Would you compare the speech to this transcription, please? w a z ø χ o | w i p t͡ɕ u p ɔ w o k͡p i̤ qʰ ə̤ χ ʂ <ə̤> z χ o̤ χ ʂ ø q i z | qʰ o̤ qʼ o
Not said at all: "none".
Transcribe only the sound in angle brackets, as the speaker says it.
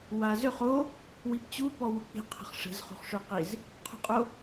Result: ə̤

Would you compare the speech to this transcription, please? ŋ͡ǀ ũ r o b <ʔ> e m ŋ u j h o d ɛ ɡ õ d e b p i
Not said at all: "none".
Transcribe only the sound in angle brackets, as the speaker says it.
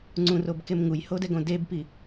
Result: k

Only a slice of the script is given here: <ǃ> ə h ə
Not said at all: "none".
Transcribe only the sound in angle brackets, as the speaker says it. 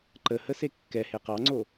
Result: ǃ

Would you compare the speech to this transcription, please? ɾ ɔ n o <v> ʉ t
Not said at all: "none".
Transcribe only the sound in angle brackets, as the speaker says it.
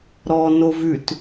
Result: v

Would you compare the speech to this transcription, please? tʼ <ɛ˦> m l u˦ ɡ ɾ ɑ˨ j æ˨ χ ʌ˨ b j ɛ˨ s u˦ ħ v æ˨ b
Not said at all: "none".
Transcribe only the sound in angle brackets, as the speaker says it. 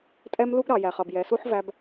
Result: ɛ˦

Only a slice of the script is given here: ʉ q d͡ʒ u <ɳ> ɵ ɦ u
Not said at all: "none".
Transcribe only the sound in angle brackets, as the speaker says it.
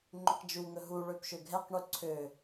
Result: ŋ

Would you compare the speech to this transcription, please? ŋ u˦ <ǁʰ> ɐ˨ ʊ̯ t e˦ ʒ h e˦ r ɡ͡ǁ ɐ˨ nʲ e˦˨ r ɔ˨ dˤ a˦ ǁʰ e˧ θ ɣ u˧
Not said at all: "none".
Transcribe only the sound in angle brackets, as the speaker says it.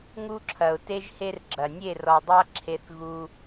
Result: ǁʰ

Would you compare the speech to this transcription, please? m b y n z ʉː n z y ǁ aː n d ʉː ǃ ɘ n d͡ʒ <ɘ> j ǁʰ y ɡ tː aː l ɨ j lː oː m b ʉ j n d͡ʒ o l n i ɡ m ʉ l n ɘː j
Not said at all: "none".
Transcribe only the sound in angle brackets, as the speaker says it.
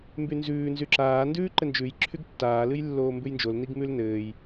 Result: ʉ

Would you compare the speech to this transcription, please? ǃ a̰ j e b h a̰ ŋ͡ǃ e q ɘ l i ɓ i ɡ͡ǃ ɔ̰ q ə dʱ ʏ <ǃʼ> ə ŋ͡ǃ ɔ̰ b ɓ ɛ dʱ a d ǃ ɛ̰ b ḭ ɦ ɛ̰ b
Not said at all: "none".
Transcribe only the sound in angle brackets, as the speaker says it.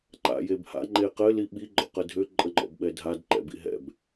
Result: ǃʼ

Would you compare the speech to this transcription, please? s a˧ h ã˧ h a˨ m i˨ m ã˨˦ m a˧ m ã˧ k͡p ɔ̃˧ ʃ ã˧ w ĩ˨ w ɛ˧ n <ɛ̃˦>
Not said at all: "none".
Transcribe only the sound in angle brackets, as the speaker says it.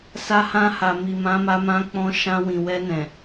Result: ɛ̃˨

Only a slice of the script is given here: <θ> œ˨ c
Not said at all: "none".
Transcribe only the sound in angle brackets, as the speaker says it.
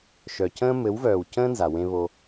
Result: ʃ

